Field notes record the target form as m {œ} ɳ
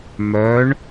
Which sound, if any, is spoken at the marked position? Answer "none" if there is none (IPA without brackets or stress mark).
œ